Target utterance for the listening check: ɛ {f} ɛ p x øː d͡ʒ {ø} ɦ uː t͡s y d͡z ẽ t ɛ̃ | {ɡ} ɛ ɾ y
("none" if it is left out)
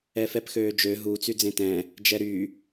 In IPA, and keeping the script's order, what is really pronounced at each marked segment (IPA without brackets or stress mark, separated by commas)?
f, ø, d͡ʒ